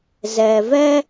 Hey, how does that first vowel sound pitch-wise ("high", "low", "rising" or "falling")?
low